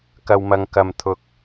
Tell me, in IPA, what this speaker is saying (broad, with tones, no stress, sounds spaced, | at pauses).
k ɐ˨ w m ɐ˨ ŋ k ɐ˨ m t̪ʰ ʊ˨ k̚